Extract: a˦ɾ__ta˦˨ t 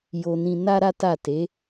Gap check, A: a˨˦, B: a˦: B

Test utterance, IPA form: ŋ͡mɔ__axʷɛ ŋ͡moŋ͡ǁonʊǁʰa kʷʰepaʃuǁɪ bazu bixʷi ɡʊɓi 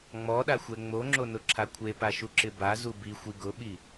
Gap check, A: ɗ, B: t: A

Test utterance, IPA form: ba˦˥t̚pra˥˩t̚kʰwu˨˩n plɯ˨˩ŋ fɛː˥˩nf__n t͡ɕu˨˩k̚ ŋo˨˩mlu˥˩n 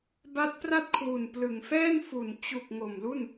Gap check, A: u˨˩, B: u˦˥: A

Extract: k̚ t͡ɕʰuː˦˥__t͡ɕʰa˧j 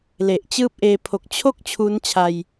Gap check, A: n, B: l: A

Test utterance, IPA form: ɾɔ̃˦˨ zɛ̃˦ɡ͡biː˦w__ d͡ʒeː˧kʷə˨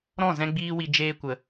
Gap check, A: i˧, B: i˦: A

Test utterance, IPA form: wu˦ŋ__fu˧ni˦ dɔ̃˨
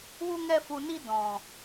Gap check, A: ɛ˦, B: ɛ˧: A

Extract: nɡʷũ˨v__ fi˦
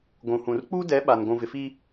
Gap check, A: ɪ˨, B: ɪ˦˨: A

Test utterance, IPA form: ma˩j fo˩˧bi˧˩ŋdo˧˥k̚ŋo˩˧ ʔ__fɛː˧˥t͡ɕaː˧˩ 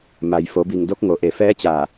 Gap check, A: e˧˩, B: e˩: B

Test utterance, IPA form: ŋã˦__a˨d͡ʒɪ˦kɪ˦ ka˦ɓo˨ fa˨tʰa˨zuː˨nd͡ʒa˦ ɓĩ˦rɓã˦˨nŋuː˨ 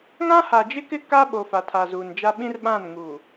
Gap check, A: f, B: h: B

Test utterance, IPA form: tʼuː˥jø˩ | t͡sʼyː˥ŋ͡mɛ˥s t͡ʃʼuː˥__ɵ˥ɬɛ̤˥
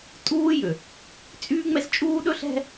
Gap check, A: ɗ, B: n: A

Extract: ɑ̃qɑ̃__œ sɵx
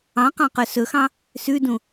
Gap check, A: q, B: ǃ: A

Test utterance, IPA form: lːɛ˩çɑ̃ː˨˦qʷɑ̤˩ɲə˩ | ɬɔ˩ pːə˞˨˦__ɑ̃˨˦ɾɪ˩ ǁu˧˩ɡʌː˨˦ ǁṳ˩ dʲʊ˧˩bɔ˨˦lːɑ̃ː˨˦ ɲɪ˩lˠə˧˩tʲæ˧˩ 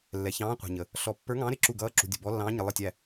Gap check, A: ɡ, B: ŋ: B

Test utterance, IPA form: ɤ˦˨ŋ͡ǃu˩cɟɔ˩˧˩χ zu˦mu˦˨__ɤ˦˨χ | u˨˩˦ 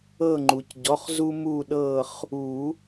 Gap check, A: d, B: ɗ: B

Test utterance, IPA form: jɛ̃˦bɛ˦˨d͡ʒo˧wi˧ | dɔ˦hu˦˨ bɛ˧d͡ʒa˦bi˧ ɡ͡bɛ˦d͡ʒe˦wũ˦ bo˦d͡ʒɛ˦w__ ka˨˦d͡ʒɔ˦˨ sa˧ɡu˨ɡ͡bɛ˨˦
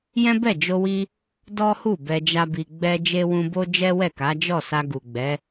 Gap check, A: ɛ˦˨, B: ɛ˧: A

